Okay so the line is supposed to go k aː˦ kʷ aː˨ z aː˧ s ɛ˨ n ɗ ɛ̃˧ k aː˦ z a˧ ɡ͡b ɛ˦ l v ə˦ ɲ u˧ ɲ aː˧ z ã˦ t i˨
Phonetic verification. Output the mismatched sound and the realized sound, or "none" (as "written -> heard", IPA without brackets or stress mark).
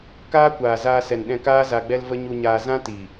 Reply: none